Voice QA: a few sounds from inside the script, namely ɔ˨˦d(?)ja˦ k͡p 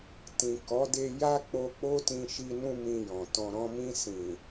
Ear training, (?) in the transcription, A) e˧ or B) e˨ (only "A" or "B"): A